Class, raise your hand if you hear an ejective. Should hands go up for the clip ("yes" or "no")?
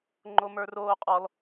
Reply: yes